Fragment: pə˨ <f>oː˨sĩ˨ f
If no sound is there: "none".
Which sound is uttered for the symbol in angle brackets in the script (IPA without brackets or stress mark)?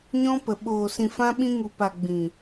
ɓ